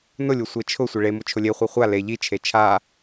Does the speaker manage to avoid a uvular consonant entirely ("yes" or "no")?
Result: no